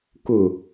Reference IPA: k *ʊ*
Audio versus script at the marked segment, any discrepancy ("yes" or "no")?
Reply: no